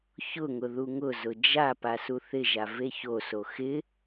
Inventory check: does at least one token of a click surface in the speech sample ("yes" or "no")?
no